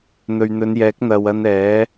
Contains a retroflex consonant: no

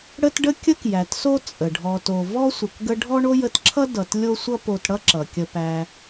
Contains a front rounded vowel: no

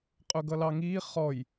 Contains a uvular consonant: yes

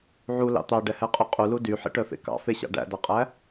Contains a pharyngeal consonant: yes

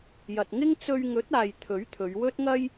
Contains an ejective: no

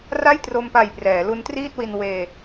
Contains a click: no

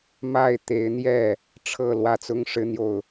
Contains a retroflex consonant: yes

